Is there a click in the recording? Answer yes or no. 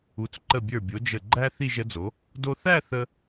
yes